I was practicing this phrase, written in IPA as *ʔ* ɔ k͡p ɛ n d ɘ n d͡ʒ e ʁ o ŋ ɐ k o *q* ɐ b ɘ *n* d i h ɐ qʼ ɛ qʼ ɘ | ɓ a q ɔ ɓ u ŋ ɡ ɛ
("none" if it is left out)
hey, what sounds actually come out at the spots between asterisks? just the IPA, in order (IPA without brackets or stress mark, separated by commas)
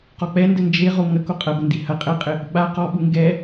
q, qʼ, n